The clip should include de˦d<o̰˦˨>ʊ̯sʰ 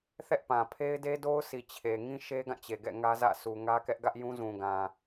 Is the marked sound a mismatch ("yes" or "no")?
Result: yes